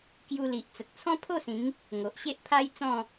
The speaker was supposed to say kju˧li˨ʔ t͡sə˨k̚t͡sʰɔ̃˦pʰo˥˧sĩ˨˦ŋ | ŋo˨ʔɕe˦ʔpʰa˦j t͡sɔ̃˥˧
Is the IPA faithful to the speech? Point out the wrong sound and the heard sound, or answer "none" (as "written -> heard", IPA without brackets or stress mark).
none